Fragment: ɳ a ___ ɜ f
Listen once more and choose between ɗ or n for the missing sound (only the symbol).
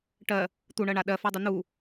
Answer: ɗ